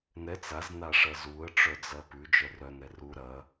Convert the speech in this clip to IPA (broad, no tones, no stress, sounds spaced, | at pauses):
n ɛ t͡s a z n a ʂ ɐ z u ə̯ ʈ͡ʂ œ d͡z ɐ p ʉ d͡ʒ œ r œ n ɛ r u ɾ ɐ